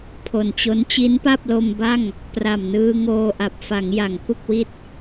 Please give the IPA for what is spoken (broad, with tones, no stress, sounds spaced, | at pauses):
pʰ o˨˩ n t͡ɕ o˦˥ n t͡ɕ i˦˥ n p a˥˩ p̚ l o˧ m b a˥˩ ŋ | p r a˨˩ m n ɯː˧ ŋ oː˧ ʔ a˨˩ p̚ f a˩˦ ŋ j a˩˦ ŋ k u˥˩ k̚ w i˥˩ t̚